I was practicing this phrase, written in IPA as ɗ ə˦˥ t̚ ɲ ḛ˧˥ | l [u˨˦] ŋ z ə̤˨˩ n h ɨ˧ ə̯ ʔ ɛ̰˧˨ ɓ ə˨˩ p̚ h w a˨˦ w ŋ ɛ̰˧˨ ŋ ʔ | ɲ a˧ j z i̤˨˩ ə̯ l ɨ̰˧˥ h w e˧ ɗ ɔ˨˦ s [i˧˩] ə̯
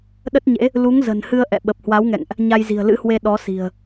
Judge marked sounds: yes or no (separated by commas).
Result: yes, no